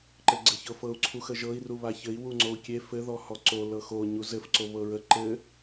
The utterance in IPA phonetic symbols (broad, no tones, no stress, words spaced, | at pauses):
ǃɘɡ͡ǀɘçɤfɤu̯ ǀʰuxəʒɤi̯ ruβaçɘi̯ wuŋ͡ǀou̯kʲe fɘ ðɔhɔǀo lɤxo ɲuzɘf ǀoβɤɹə ǃɘ